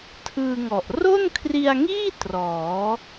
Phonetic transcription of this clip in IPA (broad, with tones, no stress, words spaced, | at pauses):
tʰɯː˧ŋɔ˨˩ʔ ro˥˩nkʰri˧a̯ŋiː˥˩ trɔː˩˦